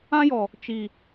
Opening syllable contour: high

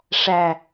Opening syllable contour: low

